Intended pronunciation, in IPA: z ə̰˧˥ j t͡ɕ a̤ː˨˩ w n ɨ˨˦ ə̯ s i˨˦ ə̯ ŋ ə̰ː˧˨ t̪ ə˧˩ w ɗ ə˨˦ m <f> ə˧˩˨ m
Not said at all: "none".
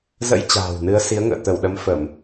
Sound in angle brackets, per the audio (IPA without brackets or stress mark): f